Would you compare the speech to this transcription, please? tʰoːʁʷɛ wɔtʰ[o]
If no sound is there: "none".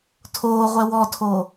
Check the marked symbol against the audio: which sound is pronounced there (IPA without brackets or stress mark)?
o